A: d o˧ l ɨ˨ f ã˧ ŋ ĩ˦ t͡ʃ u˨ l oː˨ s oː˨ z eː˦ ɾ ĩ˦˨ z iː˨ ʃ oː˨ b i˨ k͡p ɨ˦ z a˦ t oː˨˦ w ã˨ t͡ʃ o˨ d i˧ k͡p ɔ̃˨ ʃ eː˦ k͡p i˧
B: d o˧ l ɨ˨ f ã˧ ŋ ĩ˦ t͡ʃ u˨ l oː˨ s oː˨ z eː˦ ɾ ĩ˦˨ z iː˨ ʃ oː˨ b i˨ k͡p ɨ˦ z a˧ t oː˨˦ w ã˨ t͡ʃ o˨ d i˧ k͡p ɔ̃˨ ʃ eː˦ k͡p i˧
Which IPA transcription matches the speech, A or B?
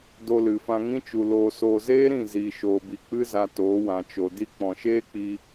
B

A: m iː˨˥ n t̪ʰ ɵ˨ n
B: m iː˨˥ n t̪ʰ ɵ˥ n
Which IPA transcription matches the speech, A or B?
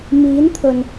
A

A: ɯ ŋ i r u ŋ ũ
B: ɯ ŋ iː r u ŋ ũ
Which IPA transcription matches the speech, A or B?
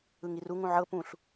A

